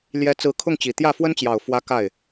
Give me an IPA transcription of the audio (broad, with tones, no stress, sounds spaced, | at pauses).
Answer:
l j ɛ˧˥ t͡s ɹ̩˧˥ kʰ ʊ˥˩ ŋ t͡ɕ i˨˩ t̪ j ä˥˩ f w ə˥ n t͡ɕ j ɑ˨˩ ʊ̯ f w ä˧˥ k a˥˩ ɪ̯